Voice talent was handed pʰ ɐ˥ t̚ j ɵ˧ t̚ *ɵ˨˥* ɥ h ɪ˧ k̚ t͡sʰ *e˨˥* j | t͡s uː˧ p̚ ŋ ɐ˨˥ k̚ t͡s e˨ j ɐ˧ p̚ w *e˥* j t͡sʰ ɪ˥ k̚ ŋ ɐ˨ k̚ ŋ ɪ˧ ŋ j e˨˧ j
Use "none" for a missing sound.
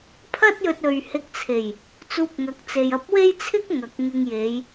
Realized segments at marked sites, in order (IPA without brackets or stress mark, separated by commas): ɵ˨, e˨˩, e˥